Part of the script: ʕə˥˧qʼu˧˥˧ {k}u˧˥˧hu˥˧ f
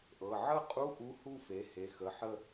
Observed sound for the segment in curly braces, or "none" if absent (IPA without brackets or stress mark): ʔ